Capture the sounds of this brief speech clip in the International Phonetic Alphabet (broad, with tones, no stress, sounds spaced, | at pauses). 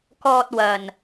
k ɔː˧ t̚ w ɐ˨ n